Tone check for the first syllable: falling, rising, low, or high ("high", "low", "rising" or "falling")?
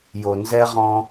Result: low